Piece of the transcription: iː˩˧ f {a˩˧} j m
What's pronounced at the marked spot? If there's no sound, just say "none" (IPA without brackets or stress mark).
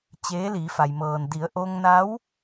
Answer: a˩